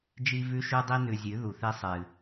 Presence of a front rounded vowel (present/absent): absent